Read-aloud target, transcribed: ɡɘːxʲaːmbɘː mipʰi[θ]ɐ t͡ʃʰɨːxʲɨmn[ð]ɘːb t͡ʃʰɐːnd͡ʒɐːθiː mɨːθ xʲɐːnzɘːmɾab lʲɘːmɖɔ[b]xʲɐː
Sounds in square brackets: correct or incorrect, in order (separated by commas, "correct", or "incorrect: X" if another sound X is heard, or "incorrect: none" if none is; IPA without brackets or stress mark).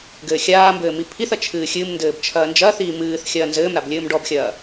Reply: correct, incorrect: d, correct